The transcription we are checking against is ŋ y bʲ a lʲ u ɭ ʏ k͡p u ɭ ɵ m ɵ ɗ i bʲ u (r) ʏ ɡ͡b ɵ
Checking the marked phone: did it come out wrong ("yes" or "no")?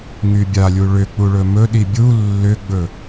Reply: yes